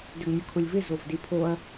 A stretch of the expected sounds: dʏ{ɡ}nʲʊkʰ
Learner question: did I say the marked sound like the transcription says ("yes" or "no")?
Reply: yes